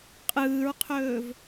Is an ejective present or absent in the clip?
present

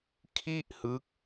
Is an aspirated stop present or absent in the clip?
present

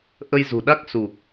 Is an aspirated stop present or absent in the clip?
absent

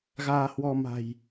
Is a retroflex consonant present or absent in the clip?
absent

